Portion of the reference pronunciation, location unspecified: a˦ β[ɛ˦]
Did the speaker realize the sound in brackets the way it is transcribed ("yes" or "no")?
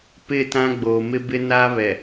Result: no